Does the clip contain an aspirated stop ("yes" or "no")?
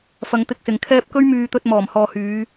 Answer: yes